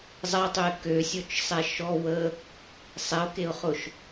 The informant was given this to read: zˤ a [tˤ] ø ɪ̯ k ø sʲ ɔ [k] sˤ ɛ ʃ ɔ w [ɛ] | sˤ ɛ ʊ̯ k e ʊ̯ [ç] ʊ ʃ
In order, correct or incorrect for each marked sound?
correct, incorrect: t͡ʃ, incorrect: ə, incorrect: χ

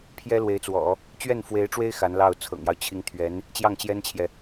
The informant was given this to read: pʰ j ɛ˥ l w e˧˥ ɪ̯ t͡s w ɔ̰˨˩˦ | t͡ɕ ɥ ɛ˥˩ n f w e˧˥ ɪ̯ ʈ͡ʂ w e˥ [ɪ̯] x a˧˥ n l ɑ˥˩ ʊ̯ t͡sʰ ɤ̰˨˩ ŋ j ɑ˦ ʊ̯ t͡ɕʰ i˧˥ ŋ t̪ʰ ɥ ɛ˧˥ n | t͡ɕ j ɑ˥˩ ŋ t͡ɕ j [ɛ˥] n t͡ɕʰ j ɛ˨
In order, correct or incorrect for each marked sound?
correct, correct

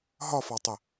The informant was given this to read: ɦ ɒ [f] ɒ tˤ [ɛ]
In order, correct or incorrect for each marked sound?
correct, incorrect: ə

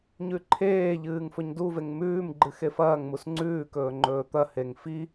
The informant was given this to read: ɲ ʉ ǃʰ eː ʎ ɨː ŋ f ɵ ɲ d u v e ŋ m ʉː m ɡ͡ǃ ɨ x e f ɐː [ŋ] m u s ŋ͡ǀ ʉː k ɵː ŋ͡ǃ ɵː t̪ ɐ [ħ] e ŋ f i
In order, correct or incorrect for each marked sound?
correct, incorrect: h

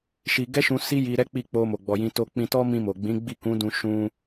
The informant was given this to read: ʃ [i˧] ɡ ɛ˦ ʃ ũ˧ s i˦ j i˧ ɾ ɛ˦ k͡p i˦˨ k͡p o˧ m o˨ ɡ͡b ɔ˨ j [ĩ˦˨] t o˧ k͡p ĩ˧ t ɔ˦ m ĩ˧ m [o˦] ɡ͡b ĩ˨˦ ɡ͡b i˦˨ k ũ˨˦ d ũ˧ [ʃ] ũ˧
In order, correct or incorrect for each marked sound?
correct, incorrect: ĩ˧, incorrect: o˨, correct

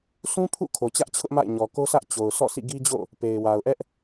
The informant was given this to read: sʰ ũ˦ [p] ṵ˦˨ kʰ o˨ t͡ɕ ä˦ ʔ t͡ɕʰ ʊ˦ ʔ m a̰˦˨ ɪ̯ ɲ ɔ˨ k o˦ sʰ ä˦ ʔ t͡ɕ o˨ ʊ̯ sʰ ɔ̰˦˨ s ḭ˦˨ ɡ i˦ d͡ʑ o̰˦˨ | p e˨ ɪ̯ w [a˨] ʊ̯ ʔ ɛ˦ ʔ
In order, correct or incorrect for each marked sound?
incorrect: pʰ, correct

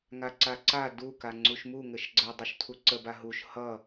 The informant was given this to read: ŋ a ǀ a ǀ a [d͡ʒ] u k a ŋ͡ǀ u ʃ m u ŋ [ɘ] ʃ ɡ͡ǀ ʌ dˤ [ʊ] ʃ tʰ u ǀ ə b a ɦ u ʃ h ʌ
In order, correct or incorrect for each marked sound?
incorrect: d, correct, incorrect: u

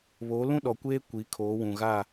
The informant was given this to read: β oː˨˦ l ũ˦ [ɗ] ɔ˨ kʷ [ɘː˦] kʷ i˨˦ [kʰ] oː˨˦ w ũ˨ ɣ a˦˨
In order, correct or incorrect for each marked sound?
correct, incorrect: eː˦, correct

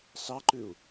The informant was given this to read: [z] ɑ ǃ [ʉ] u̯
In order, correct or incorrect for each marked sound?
incorrect: s, correct

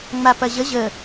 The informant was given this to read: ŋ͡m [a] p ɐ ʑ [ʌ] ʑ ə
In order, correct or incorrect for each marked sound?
correct, incorrect: ə

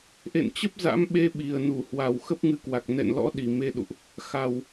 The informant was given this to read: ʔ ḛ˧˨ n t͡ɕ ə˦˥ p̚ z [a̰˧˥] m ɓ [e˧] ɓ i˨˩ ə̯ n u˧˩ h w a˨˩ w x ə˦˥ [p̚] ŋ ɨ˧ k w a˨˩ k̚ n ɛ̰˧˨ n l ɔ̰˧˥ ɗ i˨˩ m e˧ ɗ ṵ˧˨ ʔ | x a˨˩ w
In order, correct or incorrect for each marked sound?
correct, correct, correct

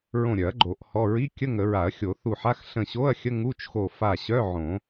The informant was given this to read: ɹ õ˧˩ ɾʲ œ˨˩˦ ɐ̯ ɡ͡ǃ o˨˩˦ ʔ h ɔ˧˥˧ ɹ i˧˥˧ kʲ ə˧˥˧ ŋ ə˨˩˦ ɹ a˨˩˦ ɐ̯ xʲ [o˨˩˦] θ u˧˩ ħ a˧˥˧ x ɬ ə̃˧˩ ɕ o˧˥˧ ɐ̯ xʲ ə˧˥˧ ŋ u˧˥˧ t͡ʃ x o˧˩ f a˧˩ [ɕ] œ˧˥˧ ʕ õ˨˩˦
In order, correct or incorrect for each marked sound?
correct, correct

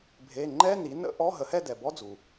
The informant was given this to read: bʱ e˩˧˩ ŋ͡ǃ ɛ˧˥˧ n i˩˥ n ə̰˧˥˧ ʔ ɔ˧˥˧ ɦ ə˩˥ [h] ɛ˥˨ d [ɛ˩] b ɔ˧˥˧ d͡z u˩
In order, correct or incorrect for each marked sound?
correct, correct

